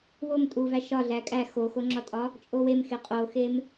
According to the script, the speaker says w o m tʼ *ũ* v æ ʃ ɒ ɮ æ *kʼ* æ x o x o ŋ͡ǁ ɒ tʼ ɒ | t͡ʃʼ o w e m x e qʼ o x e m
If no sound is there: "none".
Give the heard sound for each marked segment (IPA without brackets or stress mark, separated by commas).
u, kʼ